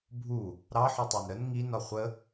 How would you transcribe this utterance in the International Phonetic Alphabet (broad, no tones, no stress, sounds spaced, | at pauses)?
bʱ u | ɾ ɑ ħ ɔ tˤ æ n ɾ ə n ŋ i n ɒ χʷ ə